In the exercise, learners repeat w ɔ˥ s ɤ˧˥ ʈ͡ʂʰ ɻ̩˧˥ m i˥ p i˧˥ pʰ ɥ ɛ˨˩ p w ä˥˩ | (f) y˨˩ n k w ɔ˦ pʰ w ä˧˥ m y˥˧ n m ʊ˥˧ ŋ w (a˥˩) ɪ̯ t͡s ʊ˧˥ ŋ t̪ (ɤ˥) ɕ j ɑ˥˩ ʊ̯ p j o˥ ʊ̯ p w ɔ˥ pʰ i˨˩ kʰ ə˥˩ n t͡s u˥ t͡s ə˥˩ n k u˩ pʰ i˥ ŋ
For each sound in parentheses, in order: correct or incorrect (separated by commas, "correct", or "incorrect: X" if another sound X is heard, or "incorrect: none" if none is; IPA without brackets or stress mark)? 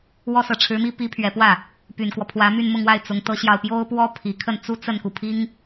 incorrect: p, correct, correct